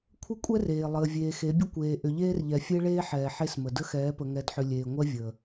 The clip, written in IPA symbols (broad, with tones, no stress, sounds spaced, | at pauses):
kʷʰ ə˦ kʷʼ ɛ˦ r eː˨ lˠ əː˨ vʲ eː˨ x e˨˦ bʲ ə˦ kʷ eː˨ ʔ ʏ˨ ʎ eː˦ r ʎ ɛ˨ fʲ e˦ ɭ eː˦ ħ ɛː˨ ħ e˦ s m ə˨ d ə˦ x ɛː˨˦ p ə˨ ŋ ɛ˨ d ħ ʏ˨ lʲ eː˨ ŋʷ ɛ˦ vʲ əː˨